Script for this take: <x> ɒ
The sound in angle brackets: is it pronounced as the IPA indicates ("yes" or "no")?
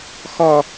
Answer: yes